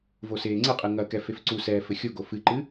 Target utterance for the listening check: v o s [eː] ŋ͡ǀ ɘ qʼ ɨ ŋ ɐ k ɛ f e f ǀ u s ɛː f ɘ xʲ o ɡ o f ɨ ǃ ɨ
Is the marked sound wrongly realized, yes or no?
no